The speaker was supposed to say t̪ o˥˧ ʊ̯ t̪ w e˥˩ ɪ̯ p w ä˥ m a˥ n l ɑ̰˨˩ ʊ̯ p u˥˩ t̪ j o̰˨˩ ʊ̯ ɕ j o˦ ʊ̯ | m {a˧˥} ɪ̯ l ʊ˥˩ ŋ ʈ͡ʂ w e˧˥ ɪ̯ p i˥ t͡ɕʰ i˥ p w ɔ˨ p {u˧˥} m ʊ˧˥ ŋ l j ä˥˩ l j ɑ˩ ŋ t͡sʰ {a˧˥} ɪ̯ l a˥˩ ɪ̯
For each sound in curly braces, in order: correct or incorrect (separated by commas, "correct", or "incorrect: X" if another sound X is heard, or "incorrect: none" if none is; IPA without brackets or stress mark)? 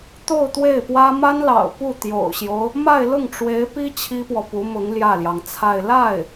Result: incorrect: a˥˧, correct, incorrect: a˥˧